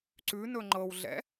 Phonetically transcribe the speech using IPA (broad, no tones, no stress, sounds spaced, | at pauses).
ǀ ʉ n ɵ ŋ͡ǃ ɤ w ɮ ɛ̰